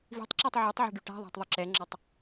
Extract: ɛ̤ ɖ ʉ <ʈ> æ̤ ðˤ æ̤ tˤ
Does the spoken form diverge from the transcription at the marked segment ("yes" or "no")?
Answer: no